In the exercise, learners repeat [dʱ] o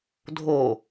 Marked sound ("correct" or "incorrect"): correct